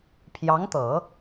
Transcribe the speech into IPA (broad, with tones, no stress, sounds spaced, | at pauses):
pʰ j ɑ˧˥ ŋ t̪ ɤ˨˩˦